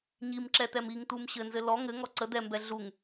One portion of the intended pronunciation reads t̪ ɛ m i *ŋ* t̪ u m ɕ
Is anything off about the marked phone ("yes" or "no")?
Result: no